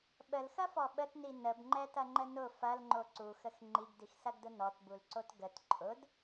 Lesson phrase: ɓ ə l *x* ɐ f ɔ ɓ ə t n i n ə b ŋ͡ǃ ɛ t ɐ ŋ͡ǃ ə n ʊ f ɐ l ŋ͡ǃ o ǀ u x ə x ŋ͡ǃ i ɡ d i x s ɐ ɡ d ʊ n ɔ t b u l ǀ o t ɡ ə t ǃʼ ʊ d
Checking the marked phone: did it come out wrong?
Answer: no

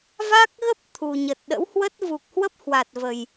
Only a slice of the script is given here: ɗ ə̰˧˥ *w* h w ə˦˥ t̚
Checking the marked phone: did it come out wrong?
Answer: no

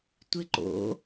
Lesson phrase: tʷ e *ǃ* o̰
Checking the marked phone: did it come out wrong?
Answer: no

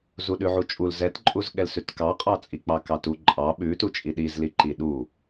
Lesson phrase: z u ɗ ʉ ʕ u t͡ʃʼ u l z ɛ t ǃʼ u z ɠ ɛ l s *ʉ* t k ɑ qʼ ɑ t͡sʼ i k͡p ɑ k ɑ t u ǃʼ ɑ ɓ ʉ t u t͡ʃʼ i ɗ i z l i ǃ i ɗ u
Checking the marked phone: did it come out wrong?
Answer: no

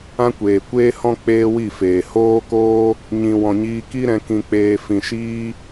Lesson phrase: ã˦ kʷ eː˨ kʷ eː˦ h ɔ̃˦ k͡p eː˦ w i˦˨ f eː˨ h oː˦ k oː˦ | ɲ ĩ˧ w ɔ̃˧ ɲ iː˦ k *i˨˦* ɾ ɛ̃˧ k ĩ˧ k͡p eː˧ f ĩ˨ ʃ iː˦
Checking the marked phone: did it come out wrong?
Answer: yes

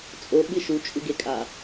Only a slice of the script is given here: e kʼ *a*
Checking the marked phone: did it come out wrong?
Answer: no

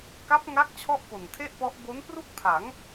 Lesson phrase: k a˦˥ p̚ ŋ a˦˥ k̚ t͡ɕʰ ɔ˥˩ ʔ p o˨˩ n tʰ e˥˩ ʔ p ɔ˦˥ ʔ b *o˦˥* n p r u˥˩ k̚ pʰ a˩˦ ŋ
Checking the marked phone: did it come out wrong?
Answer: no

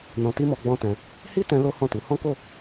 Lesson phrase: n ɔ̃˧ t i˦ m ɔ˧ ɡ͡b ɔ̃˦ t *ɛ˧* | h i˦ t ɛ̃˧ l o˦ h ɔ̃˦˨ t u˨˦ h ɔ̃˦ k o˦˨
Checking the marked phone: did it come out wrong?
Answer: yes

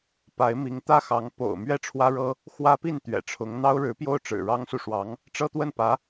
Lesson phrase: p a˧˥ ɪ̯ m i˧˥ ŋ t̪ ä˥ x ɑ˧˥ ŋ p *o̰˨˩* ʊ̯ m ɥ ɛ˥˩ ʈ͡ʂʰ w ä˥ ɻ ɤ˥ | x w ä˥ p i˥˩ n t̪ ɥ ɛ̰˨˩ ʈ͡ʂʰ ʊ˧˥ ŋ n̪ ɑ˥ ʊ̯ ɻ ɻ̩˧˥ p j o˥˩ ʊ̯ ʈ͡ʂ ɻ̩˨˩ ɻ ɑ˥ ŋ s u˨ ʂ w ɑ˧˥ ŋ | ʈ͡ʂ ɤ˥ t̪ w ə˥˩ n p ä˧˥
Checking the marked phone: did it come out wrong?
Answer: no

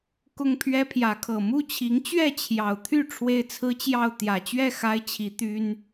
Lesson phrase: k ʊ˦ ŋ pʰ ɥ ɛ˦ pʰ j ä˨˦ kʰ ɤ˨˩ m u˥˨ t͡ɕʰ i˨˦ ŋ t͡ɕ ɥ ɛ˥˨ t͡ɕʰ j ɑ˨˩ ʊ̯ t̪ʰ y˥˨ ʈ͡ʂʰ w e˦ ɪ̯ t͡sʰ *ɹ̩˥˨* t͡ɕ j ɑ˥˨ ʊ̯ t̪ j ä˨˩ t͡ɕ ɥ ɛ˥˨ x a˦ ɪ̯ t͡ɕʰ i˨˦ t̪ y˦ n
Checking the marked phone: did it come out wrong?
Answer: yes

